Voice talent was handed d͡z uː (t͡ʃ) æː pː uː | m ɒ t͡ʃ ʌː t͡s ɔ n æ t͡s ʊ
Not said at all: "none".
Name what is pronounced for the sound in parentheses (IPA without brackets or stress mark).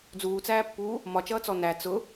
t͡s